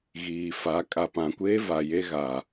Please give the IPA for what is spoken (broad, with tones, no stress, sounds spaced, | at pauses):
ɣ iː˨ f a˨˦ kʼ a˨ p ã˨ kʷ eː˦ v a˨ j e˦ ɣ a˨